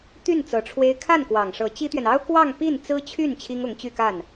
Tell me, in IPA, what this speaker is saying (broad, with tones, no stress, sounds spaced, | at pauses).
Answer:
t̪ y˥˩ n t͡s ɤ˧˥ ʈ͡ʂʰ w e˥ ɪ̯ kʰ a˥˩ n k w ɑ˨˩ ŋ ʂ ɤ˧˥ t͡ɕ i˥ t̪ ɥ ɛ˨ n ɑ˥ ʊ̯ k w ɑ˥˧ ŋ p i˥˩ n t͡s ɹ̩˥ t͡ɕʰ y˥˩ n t͡ɕʰ i˥ ŋ ʊ˧˥ ŋ t͡ɕ y˥˧ k a˥˩ n